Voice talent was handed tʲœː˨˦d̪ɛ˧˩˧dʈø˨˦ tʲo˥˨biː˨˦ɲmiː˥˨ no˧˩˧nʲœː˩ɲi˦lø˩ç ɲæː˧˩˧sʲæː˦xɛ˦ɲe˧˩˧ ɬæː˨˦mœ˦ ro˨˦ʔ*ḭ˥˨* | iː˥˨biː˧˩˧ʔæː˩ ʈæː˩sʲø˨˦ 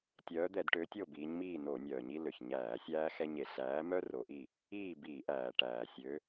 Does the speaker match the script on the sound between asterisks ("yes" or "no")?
no